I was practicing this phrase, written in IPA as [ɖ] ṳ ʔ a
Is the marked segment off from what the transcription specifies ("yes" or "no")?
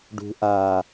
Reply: no